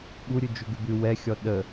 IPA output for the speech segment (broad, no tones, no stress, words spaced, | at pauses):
ɓuɾʲʉ d͡ʒʉɡʉbʉ wɛxʲɔ ɗə